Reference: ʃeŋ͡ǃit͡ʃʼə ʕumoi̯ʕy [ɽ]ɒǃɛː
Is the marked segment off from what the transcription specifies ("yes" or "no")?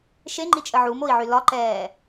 yes